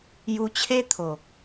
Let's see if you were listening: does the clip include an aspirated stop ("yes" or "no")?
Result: yes